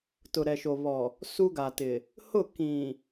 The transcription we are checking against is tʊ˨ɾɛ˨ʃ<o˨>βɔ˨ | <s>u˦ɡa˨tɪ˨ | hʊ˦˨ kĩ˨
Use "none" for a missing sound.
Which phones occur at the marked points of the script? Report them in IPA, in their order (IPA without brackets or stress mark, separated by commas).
o˨, s